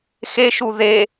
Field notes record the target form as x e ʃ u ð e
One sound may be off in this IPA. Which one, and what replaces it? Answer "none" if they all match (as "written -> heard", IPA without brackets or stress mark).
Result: none